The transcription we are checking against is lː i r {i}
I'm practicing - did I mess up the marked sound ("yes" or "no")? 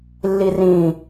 yes